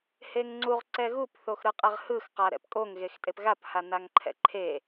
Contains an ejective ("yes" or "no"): yes